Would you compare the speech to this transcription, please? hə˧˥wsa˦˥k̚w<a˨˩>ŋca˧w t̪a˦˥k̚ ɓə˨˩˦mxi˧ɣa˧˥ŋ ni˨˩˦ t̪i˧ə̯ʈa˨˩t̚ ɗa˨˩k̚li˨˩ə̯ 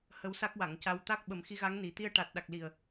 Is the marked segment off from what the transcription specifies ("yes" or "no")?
yes